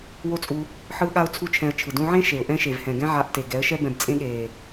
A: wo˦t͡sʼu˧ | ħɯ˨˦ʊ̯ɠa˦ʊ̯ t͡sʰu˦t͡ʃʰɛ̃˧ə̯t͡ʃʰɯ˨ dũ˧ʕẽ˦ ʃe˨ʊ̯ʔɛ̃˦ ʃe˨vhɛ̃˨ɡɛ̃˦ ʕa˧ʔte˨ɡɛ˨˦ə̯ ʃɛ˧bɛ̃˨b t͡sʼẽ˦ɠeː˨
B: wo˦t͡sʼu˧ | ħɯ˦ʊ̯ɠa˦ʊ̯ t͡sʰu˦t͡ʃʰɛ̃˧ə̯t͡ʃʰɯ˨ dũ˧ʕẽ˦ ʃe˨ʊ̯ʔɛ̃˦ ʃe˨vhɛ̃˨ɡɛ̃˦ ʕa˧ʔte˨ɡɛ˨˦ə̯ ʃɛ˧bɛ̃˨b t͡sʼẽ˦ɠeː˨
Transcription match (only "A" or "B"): B